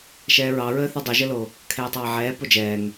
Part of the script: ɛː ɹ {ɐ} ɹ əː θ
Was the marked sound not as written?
yes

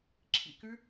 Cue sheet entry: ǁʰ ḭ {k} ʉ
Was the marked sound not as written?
no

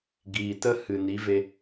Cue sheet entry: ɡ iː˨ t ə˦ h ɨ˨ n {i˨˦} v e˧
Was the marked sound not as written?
no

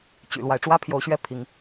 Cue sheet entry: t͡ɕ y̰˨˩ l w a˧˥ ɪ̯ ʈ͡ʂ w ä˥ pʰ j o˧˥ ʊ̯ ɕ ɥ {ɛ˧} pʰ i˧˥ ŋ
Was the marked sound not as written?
yes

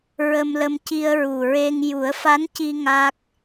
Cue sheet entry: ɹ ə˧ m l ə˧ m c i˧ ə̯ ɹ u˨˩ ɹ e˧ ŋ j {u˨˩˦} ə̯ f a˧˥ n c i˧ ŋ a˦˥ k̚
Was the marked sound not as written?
no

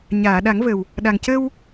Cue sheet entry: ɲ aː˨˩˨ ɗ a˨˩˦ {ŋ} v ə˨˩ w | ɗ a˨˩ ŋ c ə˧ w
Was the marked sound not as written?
no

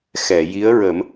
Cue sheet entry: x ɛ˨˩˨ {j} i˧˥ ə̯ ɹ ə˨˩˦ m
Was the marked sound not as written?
no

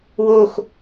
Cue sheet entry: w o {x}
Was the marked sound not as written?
no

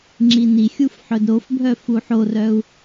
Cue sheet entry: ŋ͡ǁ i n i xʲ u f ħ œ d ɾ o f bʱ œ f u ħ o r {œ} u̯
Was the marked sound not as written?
no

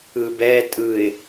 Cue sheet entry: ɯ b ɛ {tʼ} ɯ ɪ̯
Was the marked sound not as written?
no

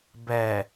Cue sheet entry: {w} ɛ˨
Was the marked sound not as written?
yes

